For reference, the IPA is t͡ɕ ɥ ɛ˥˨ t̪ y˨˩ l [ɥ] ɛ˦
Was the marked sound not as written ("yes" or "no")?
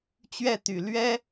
no